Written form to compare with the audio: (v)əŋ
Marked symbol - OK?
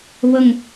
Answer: no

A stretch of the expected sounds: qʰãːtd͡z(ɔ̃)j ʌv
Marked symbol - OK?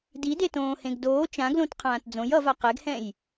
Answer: no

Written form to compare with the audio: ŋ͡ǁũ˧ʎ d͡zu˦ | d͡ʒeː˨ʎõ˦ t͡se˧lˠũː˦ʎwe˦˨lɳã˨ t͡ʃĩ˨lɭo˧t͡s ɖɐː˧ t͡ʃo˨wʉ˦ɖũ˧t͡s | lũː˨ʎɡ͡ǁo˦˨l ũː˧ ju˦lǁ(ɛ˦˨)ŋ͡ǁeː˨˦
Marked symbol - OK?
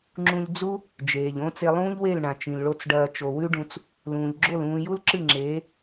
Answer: no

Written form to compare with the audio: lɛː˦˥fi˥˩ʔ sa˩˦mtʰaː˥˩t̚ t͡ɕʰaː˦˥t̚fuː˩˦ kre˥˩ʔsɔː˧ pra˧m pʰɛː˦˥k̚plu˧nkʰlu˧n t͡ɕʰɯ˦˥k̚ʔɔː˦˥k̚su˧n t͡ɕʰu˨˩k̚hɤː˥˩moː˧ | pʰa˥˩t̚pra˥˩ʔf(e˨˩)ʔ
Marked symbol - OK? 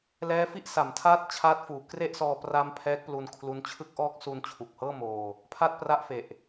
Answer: yes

